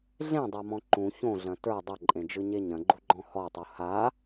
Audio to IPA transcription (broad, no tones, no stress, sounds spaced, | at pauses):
ɮ ẽ dˤ a m ɔ̃ ǃ ũ ç õ ɮ ɐ̃ t ə˞ dˤ ɐ ǃʼ ẽ d͡ʒ ɯ ɲ e ɲ ɐ̃ ɡ͡ǃ u ɡ͡ǃ ɔ̃ h ɔ tˤ u h a